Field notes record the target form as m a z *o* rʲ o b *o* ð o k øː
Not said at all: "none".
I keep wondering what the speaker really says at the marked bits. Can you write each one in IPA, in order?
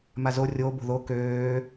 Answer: o, o̤

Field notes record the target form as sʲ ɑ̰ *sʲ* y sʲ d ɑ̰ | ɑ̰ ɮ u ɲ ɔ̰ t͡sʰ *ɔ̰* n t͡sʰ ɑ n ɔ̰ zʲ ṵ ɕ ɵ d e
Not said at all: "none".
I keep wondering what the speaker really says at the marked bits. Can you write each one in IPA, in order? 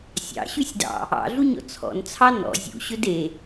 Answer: ɕ, ɔ̰

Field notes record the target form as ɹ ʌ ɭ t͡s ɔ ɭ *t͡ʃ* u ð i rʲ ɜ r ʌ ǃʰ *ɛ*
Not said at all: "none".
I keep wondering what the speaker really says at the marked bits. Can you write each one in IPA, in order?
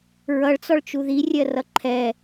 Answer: t͡ʃ, ɛ

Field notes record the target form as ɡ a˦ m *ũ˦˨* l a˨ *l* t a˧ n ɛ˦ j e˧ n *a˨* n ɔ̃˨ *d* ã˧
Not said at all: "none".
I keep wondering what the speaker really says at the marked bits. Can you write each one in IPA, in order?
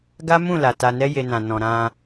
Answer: ũ˦˨, none, ã˨, ɾ

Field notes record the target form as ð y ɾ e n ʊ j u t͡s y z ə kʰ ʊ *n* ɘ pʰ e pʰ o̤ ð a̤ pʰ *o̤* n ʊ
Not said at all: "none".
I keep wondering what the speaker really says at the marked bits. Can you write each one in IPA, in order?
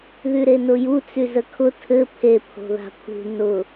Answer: tʰ, ṳ

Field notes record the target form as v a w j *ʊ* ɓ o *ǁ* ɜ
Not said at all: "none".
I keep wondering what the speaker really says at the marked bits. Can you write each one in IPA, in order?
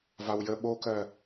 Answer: ə, k

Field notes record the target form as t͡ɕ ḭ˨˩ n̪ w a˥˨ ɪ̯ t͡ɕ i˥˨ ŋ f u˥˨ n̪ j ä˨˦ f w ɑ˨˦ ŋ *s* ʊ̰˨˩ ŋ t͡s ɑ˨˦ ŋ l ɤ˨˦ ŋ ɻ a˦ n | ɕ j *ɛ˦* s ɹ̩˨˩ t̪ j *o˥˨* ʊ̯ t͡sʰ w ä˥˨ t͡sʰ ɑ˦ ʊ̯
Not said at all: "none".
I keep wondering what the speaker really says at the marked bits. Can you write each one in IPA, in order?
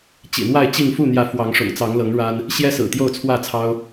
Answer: ʂ, ɛ˦, o˥˨

